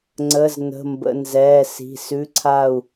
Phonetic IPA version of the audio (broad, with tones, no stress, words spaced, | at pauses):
ŋ͡ǀə˧˥˧z nə̤˧˥˧mbə̰˧˥˧ nzɛː˧˥˧si̤˧˥˧ sʉ˧˥˧ǀʰa˥˧u̯